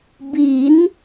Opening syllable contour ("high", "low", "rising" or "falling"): rising